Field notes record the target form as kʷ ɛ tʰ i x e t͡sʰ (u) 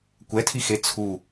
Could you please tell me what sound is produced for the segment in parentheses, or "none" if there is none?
u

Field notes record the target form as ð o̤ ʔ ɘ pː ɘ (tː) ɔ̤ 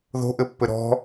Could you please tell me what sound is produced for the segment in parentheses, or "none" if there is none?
ɾ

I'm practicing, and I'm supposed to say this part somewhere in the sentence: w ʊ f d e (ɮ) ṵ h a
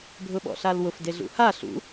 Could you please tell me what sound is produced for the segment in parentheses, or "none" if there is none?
ɮ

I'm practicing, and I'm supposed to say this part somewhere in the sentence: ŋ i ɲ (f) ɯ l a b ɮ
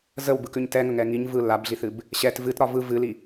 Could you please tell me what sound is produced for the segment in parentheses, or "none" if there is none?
v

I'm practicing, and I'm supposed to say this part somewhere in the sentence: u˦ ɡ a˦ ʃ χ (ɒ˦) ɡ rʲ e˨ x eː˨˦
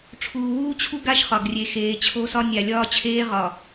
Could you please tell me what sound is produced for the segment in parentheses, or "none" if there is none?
ɒ˨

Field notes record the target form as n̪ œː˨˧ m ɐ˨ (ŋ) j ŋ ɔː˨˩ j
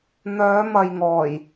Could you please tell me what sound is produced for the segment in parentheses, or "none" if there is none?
none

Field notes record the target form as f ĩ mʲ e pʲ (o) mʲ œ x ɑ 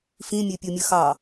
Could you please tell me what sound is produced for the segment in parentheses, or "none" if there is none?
o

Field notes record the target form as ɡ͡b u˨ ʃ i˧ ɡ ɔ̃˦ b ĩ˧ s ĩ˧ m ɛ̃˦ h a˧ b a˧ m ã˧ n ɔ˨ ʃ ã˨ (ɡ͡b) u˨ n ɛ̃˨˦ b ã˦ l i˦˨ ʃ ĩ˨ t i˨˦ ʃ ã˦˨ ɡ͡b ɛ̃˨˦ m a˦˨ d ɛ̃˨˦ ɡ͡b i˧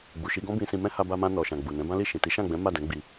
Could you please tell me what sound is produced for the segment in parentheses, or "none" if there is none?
ɡ͡b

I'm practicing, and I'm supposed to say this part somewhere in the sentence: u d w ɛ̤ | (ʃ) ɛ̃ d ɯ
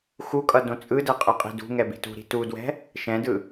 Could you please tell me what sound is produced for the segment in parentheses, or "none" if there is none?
ʃ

